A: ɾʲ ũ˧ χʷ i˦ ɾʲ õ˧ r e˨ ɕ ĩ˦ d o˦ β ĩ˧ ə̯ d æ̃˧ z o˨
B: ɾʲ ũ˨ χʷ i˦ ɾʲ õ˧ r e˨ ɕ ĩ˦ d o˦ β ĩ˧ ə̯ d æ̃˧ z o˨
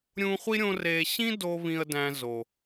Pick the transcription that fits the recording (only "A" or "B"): A